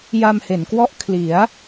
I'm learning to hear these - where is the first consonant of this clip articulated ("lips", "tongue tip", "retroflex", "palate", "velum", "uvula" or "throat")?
palate